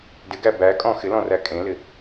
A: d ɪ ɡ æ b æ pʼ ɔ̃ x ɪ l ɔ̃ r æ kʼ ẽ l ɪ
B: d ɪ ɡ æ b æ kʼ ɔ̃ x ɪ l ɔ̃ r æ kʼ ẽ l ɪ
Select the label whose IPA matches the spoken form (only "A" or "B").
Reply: B